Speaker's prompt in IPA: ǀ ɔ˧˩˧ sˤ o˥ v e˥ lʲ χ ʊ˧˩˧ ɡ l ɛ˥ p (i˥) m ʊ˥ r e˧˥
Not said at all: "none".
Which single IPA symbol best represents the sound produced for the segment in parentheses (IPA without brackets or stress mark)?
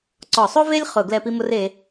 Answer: i˥